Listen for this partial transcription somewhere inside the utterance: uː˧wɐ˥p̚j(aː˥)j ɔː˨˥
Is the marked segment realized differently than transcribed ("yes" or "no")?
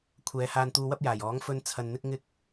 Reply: yes